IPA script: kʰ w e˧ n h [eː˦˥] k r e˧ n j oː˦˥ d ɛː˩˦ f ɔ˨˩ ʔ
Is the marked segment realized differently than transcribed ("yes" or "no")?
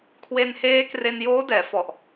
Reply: no